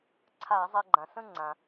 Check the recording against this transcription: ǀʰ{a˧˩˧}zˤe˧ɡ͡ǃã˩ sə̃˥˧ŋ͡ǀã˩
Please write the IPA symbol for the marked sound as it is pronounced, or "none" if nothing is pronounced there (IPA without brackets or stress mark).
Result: a˧˩˧